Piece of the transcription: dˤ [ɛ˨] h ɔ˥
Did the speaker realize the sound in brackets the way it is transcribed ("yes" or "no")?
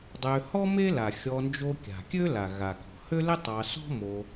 no